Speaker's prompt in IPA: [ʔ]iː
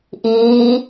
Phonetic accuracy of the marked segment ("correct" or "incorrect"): correct